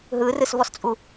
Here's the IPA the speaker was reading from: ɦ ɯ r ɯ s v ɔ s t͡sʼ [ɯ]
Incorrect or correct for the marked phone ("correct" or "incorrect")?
incorrect